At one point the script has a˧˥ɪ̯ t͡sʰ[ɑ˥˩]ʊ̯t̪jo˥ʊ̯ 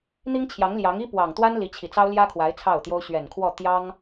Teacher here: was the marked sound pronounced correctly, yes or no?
yes